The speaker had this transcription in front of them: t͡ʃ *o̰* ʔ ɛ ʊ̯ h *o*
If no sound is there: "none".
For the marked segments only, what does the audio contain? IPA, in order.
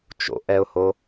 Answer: o̰, o

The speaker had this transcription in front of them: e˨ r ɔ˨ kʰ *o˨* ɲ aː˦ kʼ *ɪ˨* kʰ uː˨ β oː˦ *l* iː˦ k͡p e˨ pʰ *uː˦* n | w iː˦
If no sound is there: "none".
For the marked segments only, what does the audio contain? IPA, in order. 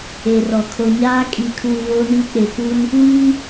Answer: o˨, i˨, n, u˦

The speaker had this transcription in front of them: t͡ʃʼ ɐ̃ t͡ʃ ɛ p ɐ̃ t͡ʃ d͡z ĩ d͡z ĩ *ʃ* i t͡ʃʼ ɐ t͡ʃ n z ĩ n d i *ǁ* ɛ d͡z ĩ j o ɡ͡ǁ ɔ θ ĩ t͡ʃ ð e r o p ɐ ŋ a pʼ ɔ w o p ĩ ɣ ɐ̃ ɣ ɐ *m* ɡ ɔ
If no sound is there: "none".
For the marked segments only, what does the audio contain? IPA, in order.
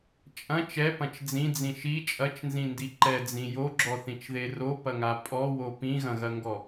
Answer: ʃ, ǃ, ŋ

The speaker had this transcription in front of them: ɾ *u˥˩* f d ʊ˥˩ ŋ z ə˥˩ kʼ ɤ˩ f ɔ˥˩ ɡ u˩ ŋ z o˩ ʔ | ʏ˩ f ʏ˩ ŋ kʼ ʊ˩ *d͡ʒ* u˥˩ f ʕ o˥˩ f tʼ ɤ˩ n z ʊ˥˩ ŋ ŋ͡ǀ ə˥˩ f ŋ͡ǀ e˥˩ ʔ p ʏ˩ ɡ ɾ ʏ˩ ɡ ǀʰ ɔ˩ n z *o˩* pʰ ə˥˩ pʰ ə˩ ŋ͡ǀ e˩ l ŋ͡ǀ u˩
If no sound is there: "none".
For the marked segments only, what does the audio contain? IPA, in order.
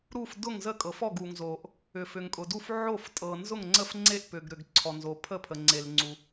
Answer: u˥˩, d, o˩

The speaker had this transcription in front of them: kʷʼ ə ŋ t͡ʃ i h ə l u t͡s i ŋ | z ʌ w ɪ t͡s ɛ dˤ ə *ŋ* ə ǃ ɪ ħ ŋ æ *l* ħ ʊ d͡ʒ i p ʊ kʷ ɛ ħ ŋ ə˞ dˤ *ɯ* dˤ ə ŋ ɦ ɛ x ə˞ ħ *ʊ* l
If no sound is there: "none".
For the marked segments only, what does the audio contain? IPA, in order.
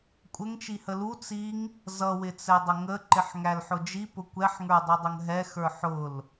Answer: ŋ, l, u, ʊ

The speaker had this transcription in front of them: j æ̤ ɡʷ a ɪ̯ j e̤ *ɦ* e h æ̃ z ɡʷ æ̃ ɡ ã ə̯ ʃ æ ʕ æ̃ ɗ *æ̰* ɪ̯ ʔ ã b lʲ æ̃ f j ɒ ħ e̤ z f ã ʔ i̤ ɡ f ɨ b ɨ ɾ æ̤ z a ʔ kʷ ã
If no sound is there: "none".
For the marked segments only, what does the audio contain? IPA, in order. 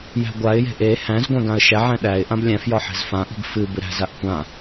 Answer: ʔ, æ

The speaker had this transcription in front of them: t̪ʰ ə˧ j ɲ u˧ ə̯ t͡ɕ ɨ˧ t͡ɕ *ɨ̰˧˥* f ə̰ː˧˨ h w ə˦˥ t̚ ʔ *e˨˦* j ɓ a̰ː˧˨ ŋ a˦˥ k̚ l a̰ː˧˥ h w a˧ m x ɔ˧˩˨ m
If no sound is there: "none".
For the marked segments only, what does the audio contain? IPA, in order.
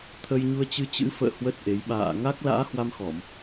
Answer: ɨ̰˧˥, e˨˦

